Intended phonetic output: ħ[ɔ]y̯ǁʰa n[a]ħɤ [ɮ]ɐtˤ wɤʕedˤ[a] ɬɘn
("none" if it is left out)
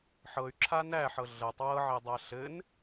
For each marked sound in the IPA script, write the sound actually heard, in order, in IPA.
ɤ, æ, ɮ, a

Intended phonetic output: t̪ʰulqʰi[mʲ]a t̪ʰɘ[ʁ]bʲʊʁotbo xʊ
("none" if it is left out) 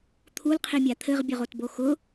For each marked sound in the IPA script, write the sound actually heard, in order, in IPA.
mʲ, ʁ

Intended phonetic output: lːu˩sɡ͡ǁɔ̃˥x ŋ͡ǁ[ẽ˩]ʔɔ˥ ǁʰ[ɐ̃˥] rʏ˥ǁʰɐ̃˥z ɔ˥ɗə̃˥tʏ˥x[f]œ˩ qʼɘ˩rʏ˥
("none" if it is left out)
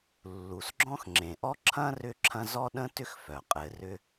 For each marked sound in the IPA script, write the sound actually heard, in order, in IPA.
ẽ˩, ɐ̃˥, f

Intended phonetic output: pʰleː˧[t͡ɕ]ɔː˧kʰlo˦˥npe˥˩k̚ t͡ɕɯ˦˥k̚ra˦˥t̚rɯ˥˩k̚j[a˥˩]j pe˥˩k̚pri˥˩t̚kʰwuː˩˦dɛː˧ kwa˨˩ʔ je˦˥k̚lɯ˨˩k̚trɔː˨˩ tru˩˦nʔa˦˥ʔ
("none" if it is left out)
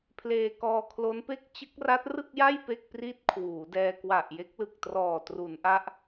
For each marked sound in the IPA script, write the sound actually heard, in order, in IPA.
k, a˥˩

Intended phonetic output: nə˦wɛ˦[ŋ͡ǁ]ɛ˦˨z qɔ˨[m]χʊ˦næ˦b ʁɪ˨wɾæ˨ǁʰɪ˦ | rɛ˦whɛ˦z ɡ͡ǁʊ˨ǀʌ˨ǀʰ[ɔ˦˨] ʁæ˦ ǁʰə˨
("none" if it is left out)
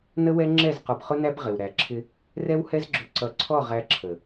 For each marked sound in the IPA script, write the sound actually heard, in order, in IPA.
ŋ͡ǁ, b, ɔ˦˨

